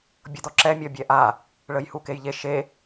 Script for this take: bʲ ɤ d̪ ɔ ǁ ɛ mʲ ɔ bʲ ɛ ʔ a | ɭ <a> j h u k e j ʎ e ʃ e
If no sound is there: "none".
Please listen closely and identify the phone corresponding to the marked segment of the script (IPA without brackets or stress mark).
ə